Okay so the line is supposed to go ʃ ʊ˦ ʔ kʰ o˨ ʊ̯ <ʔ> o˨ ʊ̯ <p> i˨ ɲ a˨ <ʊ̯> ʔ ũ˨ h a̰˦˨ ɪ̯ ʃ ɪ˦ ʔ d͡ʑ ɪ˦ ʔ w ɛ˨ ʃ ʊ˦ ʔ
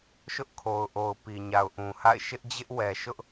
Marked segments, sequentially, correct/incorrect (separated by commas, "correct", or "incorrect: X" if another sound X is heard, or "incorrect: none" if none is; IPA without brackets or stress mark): correct, correct, correct